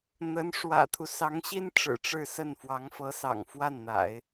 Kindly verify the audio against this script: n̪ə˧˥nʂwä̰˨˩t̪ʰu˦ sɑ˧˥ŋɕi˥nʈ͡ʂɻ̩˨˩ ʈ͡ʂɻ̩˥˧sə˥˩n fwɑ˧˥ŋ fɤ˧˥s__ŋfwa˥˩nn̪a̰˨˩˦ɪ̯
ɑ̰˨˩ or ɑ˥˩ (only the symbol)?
ɑ̰˨˩